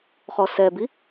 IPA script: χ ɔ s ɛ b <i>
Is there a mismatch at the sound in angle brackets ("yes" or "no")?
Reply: no